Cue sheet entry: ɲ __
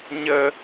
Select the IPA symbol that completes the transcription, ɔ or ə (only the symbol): ə